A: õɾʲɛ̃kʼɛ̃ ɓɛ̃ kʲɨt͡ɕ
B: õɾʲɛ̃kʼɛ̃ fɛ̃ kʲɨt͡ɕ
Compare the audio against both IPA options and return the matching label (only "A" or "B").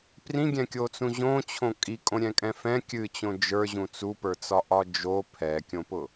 B